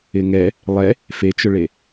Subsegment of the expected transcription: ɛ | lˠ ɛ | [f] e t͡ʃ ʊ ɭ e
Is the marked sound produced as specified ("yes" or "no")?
yes